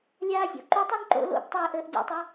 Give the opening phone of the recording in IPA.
lʲ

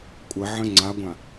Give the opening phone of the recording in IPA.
kʷʼ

